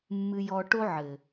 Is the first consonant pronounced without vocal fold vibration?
no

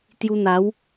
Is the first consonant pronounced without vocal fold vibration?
yes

